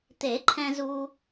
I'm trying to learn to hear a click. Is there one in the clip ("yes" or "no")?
yes